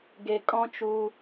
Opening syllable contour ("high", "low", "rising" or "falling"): low